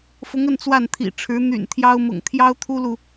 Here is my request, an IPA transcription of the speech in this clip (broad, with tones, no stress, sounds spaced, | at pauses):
f ʊ˧˥ ŋ ə˥˧ n t͡s w a˥˩ n t̪ʰ ḭ˨˩ ʈ͡ʂʰ ɻ̩˧˥ n̪ y̰˨˩ n t̪ʰ j ɑ˥ ʊ̯ m ʊ̰˨˩ ŋ t̪ʰ j ɑ˥ ʊ̯ t̪ʰ u˥ l u˨